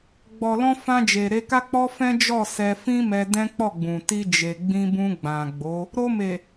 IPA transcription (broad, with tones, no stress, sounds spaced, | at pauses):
ɡ͡b ɔ˨ l ɔ̃˧ f ã˧ d͡ʒ e˨ ɾ e˧ k a˦ k͡p ɔ˦ f ɛ̃˦ d͡ʒ ɔ˦˨ s ɛ˧ f ĩ˦ m ɛ˧ d ɛ̃˦ k͡p ɔ˦˨ ɡ͡b ũ˨ t i˧ d͡ʒ e˨ ɡ͡b ĩ˧ b ũ˧ ɡ͡b ã˨ ɡ͡b o˨˦ | ɾ o˧ m e˨